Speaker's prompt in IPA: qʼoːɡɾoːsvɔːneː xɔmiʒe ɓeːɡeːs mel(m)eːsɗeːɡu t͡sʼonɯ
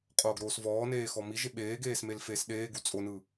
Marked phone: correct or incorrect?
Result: incorrect